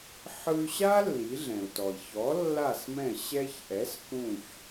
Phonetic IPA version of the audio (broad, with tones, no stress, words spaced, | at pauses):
ħɯ˧y̯ɕa˥ lːi˩˥ɮɛ̃˩u̯tɔ˩i̯ çɔ˩˥ lːa˥˩smɛ̃˥˩ ɕɛ˧çʔɛ˩˥s kũ˥˩ç